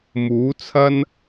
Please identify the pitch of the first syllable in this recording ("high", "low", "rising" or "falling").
rising